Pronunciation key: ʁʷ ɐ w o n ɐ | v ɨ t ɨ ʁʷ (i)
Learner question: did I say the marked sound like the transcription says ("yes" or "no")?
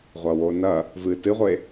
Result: no